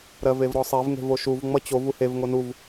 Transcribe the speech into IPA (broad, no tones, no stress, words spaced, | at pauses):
ɾɜvevɾɔsˤev ŋe̤voʃuv ŋ͡mʌt͡ɕov uhev ŋonuv